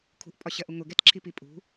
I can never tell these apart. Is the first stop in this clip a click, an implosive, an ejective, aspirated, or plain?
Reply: aspirated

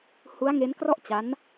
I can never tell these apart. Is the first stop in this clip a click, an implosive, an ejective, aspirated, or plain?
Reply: plain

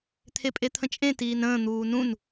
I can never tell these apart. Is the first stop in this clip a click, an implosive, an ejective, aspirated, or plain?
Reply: aspirated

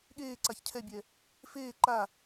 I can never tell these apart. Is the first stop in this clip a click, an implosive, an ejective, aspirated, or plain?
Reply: implosive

